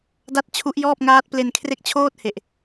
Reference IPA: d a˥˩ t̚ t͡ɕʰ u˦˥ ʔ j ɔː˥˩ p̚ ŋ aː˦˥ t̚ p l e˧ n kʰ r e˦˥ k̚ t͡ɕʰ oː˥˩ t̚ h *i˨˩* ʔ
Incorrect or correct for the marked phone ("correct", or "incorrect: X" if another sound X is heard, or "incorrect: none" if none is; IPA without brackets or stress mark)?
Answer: incorrect: e˨˩